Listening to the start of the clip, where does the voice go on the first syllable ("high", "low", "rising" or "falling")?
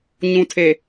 low